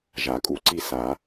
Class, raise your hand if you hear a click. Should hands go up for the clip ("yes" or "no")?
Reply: yes